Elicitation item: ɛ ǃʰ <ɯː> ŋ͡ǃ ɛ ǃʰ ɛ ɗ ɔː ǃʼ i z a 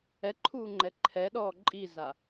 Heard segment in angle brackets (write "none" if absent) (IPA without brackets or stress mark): uː